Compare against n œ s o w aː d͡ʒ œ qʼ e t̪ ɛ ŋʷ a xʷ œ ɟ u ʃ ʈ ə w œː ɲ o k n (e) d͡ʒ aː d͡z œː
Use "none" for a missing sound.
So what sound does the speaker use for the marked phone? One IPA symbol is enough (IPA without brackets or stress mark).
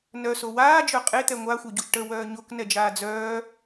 ɛ